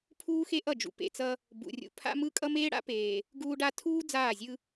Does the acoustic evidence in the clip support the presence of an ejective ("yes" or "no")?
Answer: yes